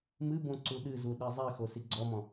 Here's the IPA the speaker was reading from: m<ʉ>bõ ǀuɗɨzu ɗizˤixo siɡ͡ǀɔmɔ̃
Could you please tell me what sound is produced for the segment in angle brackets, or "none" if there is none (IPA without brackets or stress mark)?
ɨ